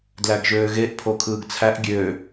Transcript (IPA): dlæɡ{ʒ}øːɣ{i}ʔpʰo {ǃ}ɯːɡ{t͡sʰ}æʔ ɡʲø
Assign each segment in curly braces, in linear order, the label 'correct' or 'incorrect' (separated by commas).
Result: correct, incorrect, incorrect, correct